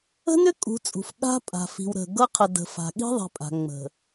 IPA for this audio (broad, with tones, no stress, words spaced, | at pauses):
ə̤˦nʏ˦ kʼṳ˨˦t͡sʼṳ˨f ɠa̤˦pʼa̤˨fi̤˨wɾə̤˨ ɡɤ˦qʰə˨də̤˨ fa̤˨ɠi̤˦ðˤi̤˨pʼa̤˨ ŋ͡mə̤˨